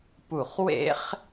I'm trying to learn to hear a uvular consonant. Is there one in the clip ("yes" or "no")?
yes